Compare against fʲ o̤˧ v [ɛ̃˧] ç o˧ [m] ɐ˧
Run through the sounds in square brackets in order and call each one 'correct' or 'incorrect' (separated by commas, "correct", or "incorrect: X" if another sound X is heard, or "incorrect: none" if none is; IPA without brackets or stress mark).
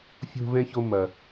correct, correct